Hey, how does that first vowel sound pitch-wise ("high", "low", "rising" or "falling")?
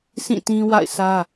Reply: falling